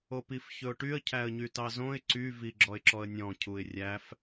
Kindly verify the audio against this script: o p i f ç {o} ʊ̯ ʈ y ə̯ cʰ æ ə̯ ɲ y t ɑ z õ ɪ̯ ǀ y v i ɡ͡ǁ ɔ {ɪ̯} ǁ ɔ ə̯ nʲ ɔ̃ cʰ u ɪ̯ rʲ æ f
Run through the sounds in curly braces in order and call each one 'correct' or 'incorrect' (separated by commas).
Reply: incorrect, correct